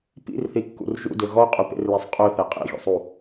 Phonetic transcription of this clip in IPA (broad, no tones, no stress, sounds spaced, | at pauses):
p ḭ r θ i kː ṵ r ʒ ṵ d ø ɣ ɔ qʼ y p ḛ r l e sˤ qʼ ø θ e qʼ ḭ ɣ ḭ sˤ u